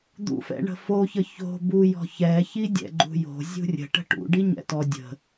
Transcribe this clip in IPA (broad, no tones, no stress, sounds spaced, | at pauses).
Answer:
d̪ ṵ f ɛ̰ ɳ ə̤ f o ç ə ç o̤ b u j ɔ̤ ç ɛ ç i dʲ ɛ̰ ɡ͡ǃ ṳ j o̤ zʲ ṳ rʲ ə̤ ʈ ə̤ ʈ ṵ ɖ i ɲ ɛ̰ t ɔ dʲ ə̤